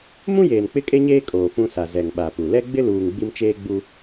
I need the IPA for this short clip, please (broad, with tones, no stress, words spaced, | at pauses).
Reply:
mũ˦jeː˨n k͡pɪ˦kʼe˦ɲeː˦ kʼoː˨fũ˦sa˨ zɛ˨ŋɓa˨pu˨ lɛ˦ɡ͡bɪ˦luː˨ŋ ɡ͡bi˦mt͡ʃeː˦ɡ͡bu˦